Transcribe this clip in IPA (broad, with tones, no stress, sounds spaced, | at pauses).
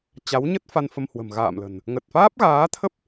t͡ɕ a˨˦ w ɲ ə˦˥ t̚ f a˧ n f ə˧ m h w ə̤˨˩ m ɣ a̰ː˧˨ m l ə̤˨˩ n | ŋ ə˨˩ t̚ f aː˦˥ p̚ ɣ aː˨˦ t̪ʰ ə˦˥ p̚